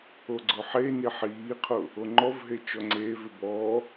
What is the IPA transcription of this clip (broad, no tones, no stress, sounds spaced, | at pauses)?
o ɡ͡ǀ ʊ ħ e n i ħ iː qʰ ʊ | o ŋ͡ǃ ɔ v ɦ e t͡ʃ ɔ ŋ͡ǀ eː v ɪ b ɔ